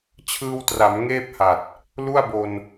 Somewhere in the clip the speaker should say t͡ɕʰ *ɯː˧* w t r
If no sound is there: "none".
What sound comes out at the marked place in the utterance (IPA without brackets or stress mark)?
ɯː˧